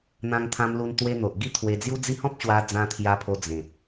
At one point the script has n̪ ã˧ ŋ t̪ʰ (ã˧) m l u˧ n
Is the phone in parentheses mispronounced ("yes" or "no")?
no